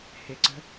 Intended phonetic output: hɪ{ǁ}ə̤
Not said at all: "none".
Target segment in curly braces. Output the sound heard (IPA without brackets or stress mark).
ǀ